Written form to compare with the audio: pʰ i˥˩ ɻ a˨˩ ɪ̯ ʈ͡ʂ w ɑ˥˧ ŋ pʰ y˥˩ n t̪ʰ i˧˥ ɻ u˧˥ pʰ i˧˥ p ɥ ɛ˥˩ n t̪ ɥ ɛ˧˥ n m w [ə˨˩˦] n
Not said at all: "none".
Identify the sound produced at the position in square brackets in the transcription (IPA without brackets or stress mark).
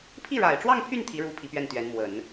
ə˨˩˦